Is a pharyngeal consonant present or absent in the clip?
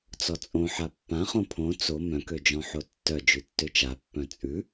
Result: present